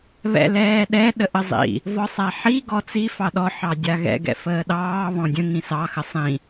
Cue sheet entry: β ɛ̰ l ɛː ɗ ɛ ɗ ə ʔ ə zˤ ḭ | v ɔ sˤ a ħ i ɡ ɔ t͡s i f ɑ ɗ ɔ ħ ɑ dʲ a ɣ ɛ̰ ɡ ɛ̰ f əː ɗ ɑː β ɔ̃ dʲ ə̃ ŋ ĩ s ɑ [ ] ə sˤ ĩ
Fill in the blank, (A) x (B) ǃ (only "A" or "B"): A